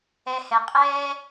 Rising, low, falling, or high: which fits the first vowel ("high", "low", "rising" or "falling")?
low